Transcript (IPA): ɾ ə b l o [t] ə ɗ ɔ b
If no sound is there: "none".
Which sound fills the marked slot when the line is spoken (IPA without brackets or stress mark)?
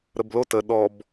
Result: t